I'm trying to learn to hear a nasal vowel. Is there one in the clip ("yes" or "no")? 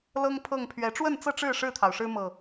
no